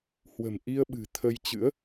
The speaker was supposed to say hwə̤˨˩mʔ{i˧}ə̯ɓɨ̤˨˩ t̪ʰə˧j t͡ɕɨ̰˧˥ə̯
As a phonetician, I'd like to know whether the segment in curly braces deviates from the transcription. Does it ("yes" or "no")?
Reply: no